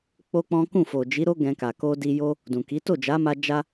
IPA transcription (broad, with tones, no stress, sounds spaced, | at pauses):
k͡p o˦ k͡p ɔ̃˦ k ũ˦˨ f o˨ d͡ʒ i˨˦ ɾ o˦ ɡ ɛ̃˧ k a˨ k o˧ d i˧ j o˦ | d ũ˨ k i˨˦ t o˦˨ d͡ʒ a˨˦ m a˧ d͡ʒ a˦